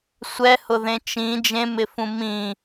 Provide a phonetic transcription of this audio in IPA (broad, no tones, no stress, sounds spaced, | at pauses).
sʷ ɛ h ʊ ð ẽ t͡ʃ ĩ d͡ʒ ẽ m ɪ f ũ m ĩ